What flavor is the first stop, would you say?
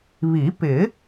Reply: plain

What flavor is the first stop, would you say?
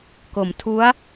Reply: plain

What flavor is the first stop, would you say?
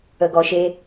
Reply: plain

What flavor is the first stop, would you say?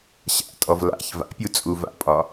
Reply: ejective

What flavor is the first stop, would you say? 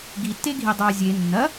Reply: plain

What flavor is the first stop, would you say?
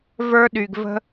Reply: implosive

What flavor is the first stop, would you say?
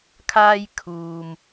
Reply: aspirated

